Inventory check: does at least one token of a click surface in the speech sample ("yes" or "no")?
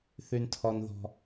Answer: no